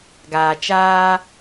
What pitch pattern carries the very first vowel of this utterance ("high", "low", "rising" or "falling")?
low